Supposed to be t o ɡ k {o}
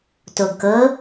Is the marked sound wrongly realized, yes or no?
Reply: yes